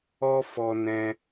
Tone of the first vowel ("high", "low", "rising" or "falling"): high